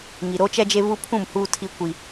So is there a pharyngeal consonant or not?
no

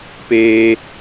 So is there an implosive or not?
no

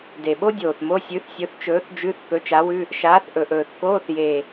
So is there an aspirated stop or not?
no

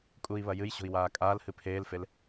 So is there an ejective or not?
yes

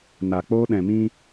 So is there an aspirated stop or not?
no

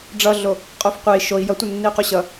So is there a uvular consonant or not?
yes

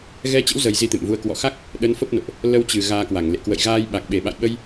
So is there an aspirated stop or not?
no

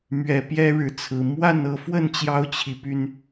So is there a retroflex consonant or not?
yes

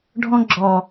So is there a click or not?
yes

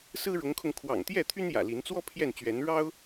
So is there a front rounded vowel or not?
yes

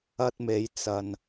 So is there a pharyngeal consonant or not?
no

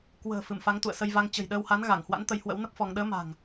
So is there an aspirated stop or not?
no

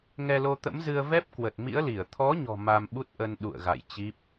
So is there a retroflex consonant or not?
no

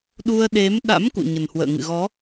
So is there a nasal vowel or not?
no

